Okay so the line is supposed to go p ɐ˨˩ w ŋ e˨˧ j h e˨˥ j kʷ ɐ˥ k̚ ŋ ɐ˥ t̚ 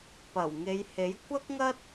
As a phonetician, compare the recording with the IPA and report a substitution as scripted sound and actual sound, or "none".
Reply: none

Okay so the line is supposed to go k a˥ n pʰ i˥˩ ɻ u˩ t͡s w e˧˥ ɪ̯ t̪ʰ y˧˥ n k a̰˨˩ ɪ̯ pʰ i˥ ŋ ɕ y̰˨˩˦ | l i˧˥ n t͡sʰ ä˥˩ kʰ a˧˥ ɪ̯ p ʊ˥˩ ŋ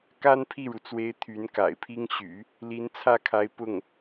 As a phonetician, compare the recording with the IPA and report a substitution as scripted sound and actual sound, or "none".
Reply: none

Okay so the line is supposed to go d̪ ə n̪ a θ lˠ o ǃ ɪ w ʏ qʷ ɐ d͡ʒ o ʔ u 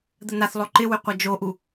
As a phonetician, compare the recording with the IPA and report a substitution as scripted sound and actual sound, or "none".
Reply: none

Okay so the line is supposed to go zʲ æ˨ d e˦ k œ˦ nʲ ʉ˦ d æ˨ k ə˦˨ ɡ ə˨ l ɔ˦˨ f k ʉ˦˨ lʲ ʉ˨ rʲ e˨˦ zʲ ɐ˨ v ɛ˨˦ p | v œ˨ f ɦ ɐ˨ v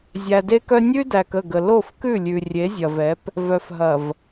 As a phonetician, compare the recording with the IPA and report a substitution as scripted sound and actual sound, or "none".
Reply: ɔ˦˨ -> o˦˨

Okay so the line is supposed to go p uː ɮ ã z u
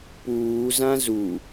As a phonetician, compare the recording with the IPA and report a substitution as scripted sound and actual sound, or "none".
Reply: ɮ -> z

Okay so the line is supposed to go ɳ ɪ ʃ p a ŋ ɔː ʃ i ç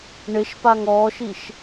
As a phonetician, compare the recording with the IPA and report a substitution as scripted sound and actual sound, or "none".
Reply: ç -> ʃ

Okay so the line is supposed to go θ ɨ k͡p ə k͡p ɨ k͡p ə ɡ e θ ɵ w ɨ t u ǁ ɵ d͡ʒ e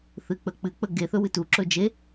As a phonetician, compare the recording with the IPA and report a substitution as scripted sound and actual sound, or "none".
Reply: none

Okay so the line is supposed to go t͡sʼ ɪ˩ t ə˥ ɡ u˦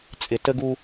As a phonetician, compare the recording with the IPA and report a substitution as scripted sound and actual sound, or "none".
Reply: none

